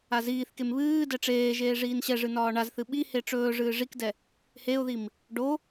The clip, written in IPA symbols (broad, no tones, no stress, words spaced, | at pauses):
aziːθkem βɨː dɛʈ͡ʂeːʒeː ʐiːnɕɛʐɨ nɒːɳazθɨ ɓihe ʈ͡ʂɵː ʐɨːʐikdɛ | heʊ̯ðim | ɖo